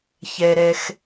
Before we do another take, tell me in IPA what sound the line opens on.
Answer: ç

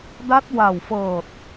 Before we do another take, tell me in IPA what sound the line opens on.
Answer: d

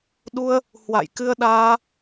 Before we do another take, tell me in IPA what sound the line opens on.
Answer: ɗ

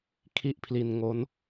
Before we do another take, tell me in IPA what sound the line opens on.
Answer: kʰ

